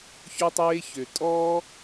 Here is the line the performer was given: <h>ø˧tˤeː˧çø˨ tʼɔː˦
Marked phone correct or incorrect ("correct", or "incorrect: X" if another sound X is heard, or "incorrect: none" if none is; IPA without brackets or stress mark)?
incorrect: ç